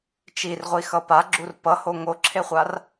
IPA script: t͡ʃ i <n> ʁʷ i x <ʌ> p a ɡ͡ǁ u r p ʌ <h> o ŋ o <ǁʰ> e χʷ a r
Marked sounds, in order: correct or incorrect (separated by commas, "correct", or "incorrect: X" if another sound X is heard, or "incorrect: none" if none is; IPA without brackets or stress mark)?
incorrect: r, correct, correct, correct